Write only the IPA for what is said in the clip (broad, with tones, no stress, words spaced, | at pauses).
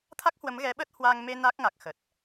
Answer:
t̪ʰa˦˥k̚hwə˨˦m ɣɛ˨˦ɓə˦˥t̚hwaː˧ŋ me˧ na˦˥k̚ŋa˨˩k̚ xə˨˩t̚